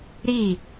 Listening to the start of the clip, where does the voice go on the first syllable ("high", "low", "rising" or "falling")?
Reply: falling